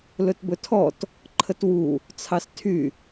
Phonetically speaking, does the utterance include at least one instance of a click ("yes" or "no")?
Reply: yes